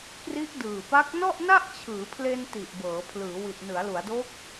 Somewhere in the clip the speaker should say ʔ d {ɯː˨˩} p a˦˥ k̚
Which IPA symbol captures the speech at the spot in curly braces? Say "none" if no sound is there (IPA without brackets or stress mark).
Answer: ɯː˨˩